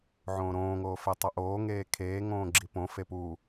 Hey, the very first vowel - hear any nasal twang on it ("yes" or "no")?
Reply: yes